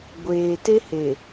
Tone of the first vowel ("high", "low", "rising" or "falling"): low